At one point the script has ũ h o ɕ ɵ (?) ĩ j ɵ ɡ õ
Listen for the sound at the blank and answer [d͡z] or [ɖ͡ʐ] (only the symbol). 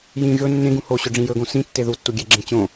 ɖ͡ʐ